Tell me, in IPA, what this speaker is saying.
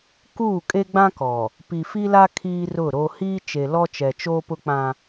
k uː˦˨ kʼ e˦ ɡ͡b ã˦ k ɔ˨ | p i˨ f i˦ l a˦ kʰ iː˦ r ʊ˦˨ ɾ o˦ h iː˦ t͡ʃ e˨ l ɔ˦ t͡ʃ ɛ˨ t͡ʃ oː˦ p ʊ˦ k͡p ã˦

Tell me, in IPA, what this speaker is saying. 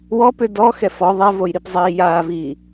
w ɔ p ʏ d ɔ x ɛ f ɔ ðˤ ɛ v o j ɾ i p zˤ iː j aː v iː

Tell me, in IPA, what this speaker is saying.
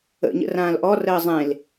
ə̰ ɲ ə̰ r ãː l ʔ ɔ r əː zˤ ẽ l

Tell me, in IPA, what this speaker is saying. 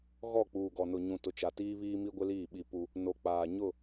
ɣ ɔ˦˨ k͡p uː˨ ɡ ɔ˨ n ʊ˨ ɲ ũ˨ t ʊ˨ t͡ʃ a˨ t iː˦ β iː˦ m i˦ ɡʷ ɪ˦ l iː˦˨ ɓ i˦ p u˦ | n o˨ k͡p aː˨ ɲ ʊ˦˨

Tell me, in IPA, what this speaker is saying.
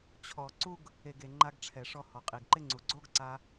t͡ɕʰ ɔ˨ ǀ u˦ ɡ | e˨ ɡ e˨ ŋ͡ǃ a˧ ɡ ʈ͡ʂʰ ɛ˨ ʂ ɔ˧ h ɔ˨ qʼ i˨ ɡ ǃ ɪ˦ ŋ͡ǀ u˨ ɡ͡ǀ o˦ ɡ ǀ a˧

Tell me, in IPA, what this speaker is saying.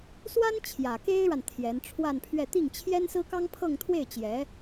s w a˥ n t͡ɕʰ j ä˨˩ k e˥ ɪ̯ ɻ a˨ n t̪ʰ j ɛ˧˥ n ʈ͡ʂʰ w a˥˧ n pʰ ɥ ɛ˥˧ t̪ i˥˩ ŋ t͡ɕʰ j ɛ˥ n s ɹ̩˥ k ɑ˥ ŋ pʰ ɤ˥˧ ŋ t̪ʰ w e˥˩ ɪ̯ t͡ɕ j ɛ˧˥

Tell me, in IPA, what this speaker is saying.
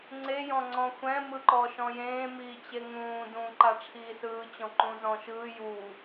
ŋ͡ǀ e j ɔ̃ ŋ͡ǀ ɔ̃ xʷ ɛ̃ m ɯ ǃ ɔ ʃ ɔ̃ j ẽː m iː t͡ɕ e ŋ ũː d ũː ǃ a ʈ͡ʂʰ iː s ɯː t͡ɕ ɔ̃ ǃ ũː z ɔ̃ ʃ ɯː j uː

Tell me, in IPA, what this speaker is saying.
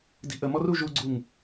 d i̤ ʔ ə m ɔ r u ʒ u ɡ͡ǀ u ŋ

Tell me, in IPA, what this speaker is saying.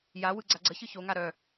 j a w ɯ ɡ͡ǀ a ɡ͡ǀ ə ç ɯ ç o ŋ a ɾ œ

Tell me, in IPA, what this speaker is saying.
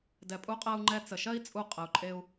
d ɛ˨ pʼ u˧ qʼ ɜ˧ u̯ ŋ͡ǃ ɛ˧ t͡s ə˨ ʃ ɜ˦ i̯ t͡sʼ u˧ qʼ ə˨ u̯ ǃʼ e˧ u̯

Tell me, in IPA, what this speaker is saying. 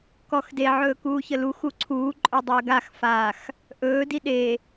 k ɔ x d e ʕ ɵː k uː ç ə l u x u ǀʰ uː ǃʼ ɵ dˤ əː ɡ a x f a x | ʔ ɵː d i ɗ e

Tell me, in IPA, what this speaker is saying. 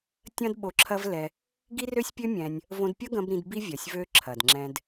tʲ ɐ̃˦ d ɓ o˧ ǁʰ ɐ˦ v l ɛ˧ | ɡ i˦ r ø˦ sʲ pʲ ø˦ mʲ ɛ̃˧ nʲ | v õ˧ d pʲ ɐ˦ ɡ ɐ̃˧ b ɾ ĩ˧ d b i˦ vʲ ɐ˨ sʲ v ø˧ ǁʰ ɐ˨ d ŋ͡ǁ ɛ̃˧ d

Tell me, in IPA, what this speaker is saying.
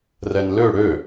r ɛ n l ø ɽ ø

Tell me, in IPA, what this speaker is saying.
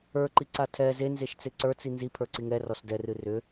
ə˞ ǃ i ǀ a tʰ ɛ z e n z e ʃ t͡s e ǀ ə˞ t͡s i n z i pʰ ə˞ ǀ i ŋ ɛ r ɔ s d ɛ r ɨ r ʏ

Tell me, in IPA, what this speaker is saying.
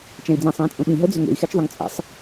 t͡ʃ ɛ̃ i̯ d͡z ĩ sˤ ĩː t͡sʼ ũ ɓ ĩ ɦ ɤ d͡z ʏ ŋ ḛ i̯ x ɛ t͡ʃ ðˤ ʊ ŋ t͡sʼ ɛ̰ sˤ

